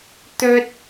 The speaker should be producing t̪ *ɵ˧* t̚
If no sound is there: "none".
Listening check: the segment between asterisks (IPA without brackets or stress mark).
ɵ˥